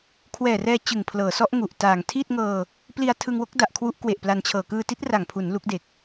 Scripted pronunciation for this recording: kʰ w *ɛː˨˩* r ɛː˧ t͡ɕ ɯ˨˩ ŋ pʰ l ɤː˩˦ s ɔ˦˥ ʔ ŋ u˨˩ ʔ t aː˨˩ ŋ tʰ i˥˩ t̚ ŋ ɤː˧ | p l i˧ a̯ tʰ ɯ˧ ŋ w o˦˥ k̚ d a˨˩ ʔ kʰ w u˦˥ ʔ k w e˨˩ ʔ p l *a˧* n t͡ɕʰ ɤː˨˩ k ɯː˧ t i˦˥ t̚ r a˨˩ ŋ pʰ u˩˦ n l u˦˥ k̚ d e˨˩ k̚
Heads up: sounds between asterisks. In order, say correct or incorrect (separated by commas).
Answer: correct, correct